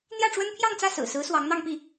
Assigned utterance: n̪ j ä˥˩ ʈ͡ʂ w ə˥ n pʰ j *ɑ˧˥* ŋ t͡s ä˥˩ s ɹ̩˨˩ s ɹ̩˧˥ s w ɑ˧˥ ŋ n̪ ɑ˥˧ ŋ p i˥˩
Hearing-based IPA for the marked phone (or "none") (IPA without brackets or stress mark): ɑ˥˧